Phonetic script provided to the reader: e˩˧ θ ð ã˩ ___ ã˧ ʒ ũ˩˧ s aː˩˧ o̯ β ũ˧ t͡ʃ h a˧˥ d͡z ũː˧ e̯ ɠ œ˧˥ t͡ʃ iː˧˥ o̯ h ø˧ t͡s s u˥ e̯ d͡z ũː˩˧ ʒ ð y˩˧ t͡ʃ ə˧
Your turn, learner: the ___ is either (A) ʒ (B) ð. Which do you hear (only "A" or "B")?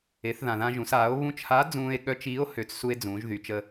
B